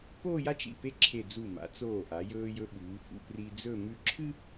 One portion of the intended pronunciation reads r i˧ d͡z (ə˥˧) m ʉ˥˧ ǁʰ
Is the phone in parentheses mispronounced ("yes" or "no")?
yes